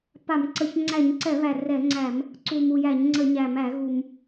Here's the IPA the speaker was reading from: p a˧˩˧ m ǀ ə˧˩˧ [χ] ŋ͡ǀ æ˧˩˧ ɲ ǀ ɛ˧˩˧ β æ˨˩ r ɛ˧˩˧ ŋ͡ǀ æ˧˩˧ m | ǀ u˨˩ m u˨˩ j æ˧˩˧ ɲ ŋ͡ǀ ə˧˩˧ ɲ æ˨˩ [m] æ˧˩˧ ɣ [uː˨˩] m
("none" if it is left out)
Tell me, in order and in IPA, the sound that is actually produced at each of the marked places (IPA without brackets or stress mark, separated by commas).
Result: ç, m, u˨˩